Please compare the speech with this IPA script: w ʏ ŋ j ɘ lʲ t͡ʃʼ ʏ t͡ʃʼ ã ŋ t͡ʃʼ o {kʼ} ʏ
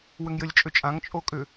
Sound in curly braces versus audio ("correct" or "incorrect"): correct